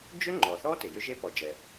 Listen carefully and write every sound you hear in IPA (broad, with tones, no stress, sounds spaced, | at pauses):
d͡ʒ ʏ˥ ŋ͡ǃ ɔ˩ θ ɔ˥ t ɪ˩ j ʏ˥ ʒ e˥ p ɔ˩ d͡ʒ ɛ˩